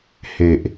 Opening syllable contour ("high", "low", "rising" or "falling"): low